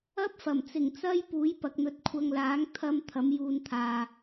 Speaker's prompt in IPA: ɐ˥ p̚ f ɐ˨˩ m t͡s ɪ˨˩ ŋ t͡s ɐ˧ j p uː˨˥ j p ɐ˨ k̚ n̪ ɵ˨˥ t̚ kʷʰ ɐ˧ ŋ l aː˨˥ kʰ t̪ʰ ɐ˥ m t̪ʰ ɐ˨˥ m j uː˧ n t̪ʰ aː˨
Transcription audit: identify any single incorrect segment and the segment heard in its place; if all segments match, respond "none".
kʰ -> ŋ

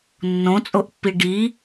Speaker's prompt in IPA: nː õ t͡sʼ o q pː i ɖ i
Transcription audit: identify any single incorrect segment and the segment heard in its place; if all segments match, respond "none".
q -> ʔ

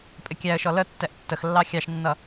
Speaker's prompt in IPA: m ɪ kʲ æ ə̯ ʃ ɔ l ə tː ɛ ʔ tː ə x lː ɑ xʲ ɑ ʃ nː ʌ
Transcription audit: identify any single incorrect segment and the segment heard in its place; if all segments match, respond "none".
m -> pʼ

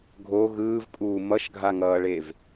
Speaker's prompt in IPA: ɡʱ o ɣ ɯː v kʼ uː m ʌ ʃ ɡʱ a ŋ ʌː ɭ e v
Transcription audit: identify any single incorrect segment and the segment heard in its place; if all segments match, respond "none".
none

